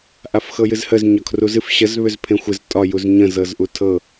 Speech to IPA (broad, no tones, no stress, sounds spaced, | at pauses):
ʔ a f x ɤ j ɨ z h ə z ɲ ɒ kʰ r u z ɨ f ɕ ə z β ʏ z pʰ ẽ xʷ ɨ z tʼ ɒ j u z ɲ ə̃ z ɤ z ʔ u tʰ ɤ